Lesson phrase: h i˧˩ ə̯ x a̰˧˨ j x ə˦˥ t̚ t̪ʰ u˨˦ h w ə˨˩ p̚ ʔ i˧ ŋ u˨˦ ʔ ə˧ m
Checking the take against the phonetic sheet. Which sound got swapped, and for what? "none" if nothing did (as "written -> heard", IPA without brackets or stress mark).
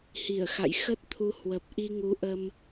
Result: none